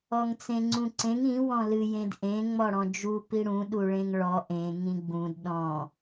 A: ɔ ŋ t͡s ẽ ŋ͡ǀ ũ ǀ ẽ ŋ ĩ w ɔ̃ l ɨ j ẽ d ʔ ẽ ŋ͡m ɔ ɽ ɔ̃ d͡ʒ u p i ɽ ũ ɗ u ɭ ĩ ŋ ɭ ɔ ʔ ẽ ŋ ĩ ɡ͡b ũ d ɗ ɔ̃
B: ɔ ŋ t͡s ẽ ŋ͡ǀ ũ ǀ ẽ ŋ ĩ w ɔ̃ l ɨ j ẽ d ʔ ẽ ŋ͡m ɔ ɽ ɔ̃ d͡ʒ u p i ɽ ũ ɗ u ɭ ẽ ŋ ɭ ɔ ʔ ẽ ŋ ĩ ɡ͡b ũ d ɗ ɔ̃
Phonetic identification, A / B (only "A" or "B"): B